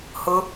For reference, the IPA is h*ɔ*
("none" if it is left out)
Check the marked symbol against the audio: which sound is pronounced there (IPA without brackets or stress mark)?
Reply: ʊ